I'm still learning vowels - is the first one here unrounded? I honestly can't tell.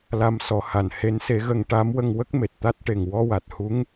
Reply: yes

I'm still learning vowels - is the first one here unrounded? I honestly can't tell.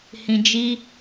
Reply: yes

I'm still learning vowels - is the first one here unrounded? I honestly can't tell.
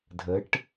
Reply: yes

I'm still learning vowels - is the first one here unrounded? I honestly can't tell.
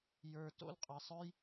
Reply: yes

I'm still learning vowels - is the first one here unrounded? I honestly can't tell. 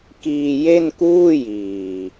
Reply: yes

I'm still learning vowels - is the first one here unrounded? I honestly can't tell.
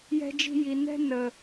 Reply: yes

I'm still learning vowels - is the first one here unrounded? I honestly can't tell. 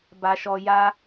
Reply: yes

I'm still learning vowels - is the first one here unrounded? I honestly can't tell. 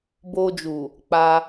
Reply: no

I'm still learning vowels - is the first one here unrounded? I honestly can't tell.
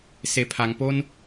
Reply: yes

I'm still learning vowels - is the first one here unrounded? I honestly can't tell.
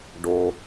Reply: no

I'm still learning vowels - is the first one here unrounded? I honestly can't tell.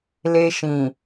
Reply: yes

